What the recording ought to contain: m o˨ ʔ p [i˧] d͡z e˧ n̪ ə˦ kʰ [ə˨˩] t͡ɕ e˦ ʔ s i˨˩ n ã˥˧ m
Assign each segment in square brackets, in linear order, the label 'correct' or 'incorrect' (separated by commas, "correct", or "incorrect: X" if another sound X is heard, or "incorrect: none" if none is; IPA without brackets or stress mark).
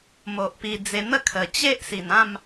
correct, correct